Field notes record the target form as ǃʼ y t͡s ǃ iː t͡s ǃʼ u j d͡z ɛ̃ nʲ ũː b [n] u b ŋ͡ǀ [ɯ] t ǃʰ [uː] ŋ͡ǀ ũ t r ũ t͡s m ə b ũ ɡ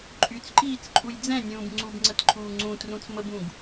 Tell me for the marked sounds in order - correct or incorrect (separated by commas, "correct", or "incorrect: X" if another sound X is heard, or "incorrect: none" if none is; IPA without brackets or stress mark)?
incorrect: ŋ͡ǀ, incorrect: ə, correct